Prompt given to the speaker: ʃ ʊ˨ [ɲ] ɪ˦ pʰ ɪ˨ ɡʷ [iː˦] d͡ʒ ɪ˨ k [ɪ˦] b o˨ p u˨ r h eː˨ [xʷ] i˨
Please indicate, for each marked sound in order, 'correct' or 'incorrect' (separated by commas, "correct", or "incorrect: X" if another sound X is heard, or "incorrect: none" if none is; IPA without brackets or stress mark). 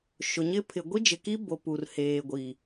correct, incorrect: i˦, incorrect: i˦, incorrect: ɡʷ